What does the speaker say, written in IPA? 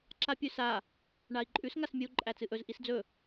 ǁapʲʉsa | ɳai̯ǃʼʉs ŋasmʲɨu̯ ǃʼæt͡sɨʔɵz ʔisd͡zɵ

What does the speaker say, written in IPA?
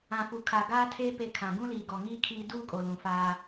ã˨fu˨kʰa˨ ɡaː˦tʰeː˦ pe˦kʰã˨ ɡũ˦liː˨ɡɔ˨ŋiː˦ kʰiː˦ duː˦kʼo˨ lũ˨ faː˦

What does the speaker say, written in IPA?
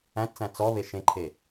æ̃tt͡sæ̃ t͡sɔβe ʃẽǃʰe

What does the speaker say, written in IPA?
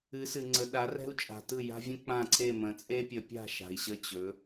ɨ˨˦sɨ˨ŋ͡ǀə˨ ɗa˨˦rɛ̤˦u̯t͡ʃʼa̤˨tɯ˦˨ ja̤˦vʲə̃˦k͡pã˦˨ǀʰe˦˨ mə̃˨˦ t͡sʼe˦pʲə˨˦pʲa̤˦˨ ʃa̤˨i̯ɕə˦˨t͡ɕɵ˨˦

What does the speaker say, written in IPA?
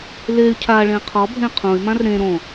ley̯ cʰaɭẽ qʰɔbʱẽ qʰõy̯mãr ɾẽ ɾõ

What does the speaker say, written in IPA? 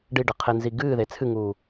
ɖiɖɘ qʰenziɡɨːðe t͡sʰɨŋuː

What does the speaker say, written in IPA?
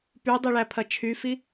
pydˤiɭæpʰɐ t͡ʃʰyfi

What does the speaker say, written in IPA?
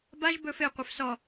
baʒ bɵf eqʷef sɔ

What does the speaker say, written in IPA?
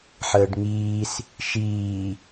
ħəːɖŋiːs | ʃiː

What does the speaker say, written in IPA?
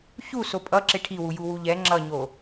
çu sopʼʌ ǁeʈʰiwu juwuʎɛ ŋ͡ǁʌɲo

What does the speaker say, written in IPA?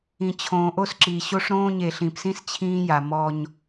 ĩ˨t͡ɕʰõː˨ʔo˦sǁiː˨ ɕo˦ʂɾõː˦ɲe˨ ɬĩ˨psĩ˦s t͡ɕʰĩː˦ja˨mɔ˦ɲ

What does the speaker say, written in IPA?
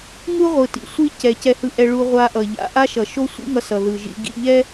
ŋu˥ʁʷɯ˩tḭ˩ sʷi˥ cɛ˩ cɛ˧hɯ˧ʔɛ˧ ɭu˧ʁʷa˧ʔʌ˩ ʎa̰˧ ʔa˥ʃʌ˩ ʃo˥sʷḭ˥ŋʌ˧ sʌ˩ðɯ˩ ʒḭ˧ ɡḭ˧ʎɛ˥

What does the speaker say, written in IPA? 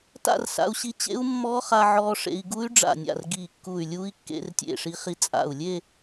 ta̰˥˧rsa̰˧u̯ɕi˧ t͡ɕḛ˦˥u̯mːɔ˦˥χa˧ʕɔː˧ ʂḛ˧i̯ ɡu˦˥y̯ɖ͡ʐa̰˧˩nʲa̰˧˩r ɡi˧˩kːu˧˩y̯lʲu˦˥i̯ kːḛ˧rtʲḛ˧˩ʂi˧χi˧ t͡sʼa̰˧˩u̯lʲe˥˧

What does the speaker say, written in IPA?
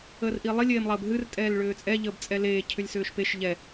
əːrʔiːlˠi lʲeːmlˠəːbɦɨr tʼɛːlɭʏːt͡sʼɛ ʎəːbt͡sʼɛleː cʰʏlʲsʏːʃpeʃ ʎɛ

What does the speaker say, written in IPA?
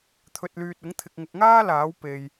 t̪ʰɵ˨t̚lyː˨t̚ʊ˨˥ŋ t̪ʰɪ˨k̚ŋʊ˨k̚ŋaː˥ laː˨˥w pe˨j

